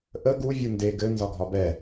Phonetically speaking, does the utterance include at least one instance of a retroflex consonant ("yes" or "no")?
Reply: no